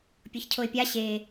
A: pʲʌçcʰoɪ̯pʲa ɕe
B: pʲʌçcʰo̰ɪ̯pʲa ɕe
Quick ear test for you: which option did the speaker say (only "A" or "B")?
A